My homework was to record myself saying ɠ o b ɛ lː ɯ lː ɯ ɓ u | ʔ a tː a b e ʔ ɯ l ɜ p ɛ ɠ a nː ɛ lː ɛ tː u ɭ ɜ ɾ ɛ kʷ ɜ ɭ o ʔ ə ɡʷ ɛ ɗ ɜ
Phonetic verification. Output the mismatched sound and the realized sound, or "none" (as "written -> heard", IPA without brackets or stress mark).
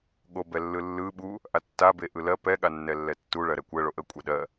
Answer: ɡʷ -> kʷʼ